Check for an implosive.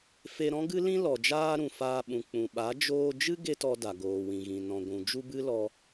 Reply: present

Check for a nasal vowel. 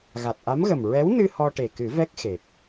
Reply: absent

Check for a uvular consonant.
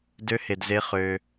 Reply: present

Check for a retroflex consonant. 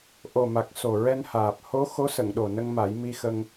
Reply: absent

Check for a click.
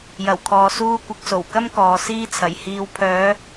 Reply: absent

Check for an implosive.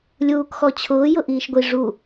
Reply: absent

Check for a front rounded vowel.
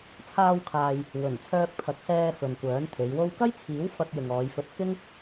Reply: present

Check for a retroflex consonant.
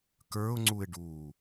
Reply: present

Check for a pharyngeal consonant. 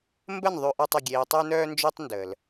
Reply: absent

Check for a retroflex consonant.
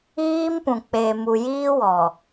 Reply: absent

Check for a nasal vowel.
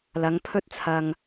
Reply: absent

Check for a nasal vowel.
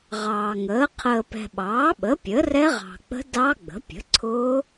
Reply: absent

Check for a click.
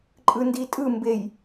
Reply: present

